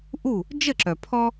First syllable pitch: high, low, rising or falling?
falling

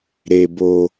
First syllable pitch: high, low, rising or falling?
low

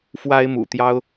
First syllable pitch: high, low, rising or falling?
high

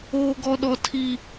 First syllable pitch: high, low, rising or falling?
high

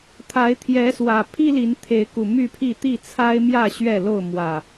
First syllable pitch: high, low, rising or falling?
rising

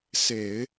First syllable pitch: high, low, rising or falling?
low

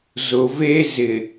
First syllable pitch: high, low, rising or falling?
low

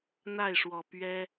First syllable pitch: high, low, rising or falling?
falling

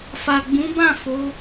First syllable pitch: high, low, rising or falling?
low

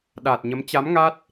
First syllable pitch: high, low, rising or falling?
low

